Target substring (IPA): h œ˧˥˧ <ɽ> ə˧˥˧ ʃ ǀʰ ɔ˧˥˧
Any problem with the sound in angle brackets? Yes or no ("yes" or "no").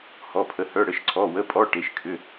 no